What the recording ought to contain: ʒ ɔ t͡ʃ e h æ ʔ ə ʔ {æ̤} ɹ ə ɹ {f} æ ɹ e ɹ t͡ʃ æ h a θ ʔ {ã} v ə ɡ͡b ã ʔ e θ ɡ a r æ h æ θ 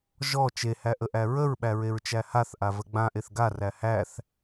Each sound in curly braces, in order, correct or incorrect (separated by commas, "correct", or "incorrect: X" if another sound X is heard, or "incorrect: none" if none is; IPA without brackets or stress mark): incorrect: æ, incorrect: ɓ, incorrect: a